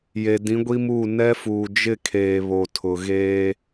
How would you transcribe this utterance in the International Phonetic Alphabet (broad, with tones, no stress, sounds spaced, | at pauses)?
j e˨ d ĩ˨˦ ɡʷ i˦ m uː˦˨ n ɛ˦ f uː˨ d͡ʒ ɪ˦˨ kʰ eː˨ β o˨ tʰ ʊ˨ ɣ eː˦